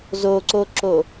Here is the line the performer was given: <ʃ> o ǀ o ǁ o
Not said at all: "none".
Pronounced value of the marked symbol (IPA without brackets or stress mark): z